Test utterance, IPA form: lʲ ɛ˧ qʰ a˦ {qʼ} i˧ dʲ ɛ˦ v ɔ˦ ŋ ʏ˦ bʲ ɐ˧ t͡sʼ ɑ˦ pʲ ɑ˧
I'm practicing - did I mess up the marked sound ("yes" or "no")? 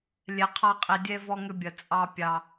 no